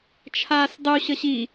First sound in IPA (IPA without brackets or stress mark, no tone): t͡ʃʰ